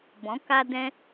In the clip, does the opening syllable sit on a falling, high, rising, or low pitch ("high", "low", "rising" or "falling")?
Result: rising